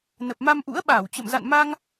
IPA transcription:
nə˨˩p̚ma˧mʔṵ˧˥ə̯ ɓaː˧˩wt͡ɕə̰˧˨m za̰˧˨nma˧ŋ

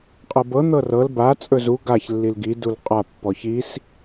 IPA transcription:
qʼɤbɤ n̪ɤrɤl ba t͡sʼɵzu ɡaç lːilɡi dulqʼa pːɔçis

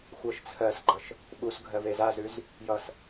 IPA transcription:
xʷɜʃt͡sʰɜsɡ͡ǃʌʃ | ɓusɡʱɜv ezazʉz | jʌs

